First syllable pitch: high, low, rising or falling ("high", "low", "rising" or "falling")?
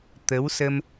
rising